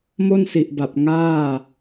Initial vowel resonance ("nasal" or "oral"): oral